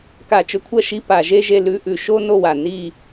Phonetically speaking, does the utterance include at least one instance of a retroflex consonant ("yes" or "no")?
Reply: no